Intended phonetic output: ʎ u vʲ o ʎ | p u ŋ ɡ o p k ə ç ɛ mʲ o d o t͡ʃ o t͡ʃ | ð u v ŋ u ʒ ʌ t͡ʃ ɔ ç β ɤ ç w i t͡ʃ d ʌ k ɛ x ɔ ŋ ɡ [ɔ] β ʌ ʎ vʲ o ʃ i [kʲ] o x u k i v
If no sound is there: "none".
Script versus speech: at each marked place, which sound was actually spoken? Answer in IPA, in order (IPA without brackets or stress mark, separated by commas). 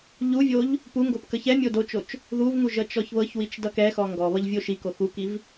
ɔ, k